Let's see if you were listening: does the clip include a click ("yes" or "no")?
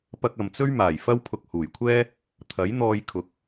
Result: no